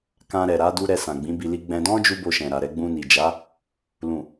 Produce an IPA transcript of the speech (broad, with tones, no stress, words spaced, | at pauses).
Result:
kã˧ɾɛ˨ ɾa˨˦du˦ ɾɛ˧sã˨ɡ͡bĩ˨˦bi˧ li˦ ɡ͡bɛ̃˦ dɔ̃˦d͡ʒu˧ bo˧ʃɛ̃˨ɾa˨ɾɛ˧ ɡ͡bũ˧ni˨d͡ʒa˨˦ | lũ˨